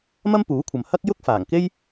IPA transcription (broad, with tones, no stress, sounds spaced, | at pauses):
m ɐ˥ m p uː˨˥ kʷʰ ɐ˨ m h ɐ˥ k̚ j ʊ˥ k̚ f aː˨˩ ŋ k e˥ j